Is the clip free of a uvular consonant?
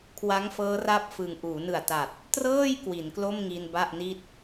yes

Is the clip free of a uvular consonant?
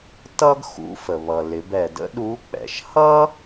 yes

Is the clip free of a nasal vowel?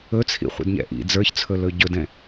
no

